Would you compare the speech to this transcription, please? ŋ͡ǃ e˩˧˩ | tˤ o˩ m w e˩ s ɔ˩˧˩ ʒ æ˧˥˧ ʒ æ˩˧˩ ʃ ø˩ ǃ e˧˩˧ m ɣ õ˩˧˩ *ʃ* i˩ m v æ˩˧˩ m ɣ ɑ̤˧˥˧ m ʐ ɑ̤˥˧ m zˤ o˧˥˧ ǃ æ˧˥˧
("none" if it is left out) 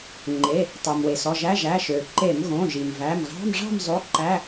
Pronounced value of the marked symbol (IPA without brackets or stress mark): ʒ